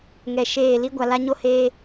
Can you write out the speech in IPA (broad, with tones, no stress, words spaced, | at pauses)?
ŋɛ˨ʃeː˦˨ li˦ɡʷa˨ la˦ɲo˦heː˦